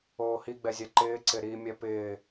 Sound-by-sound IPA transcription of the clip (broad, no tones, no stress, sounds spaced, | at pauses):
oː h i ɡ͡b ɛ zʲ ɛ ǃ ɪː ǀ ɪ ɾ i mʲ ɛ p ɪː